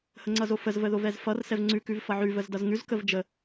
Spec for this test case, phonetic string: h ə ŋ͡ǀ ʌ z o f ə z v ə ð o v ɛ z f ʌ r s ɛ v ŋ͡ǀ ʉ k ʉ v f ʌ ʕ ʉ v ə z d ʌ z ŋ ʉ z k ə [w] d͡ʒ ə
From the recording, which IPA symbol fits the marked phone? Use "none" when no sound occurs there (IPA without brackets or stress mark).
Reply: v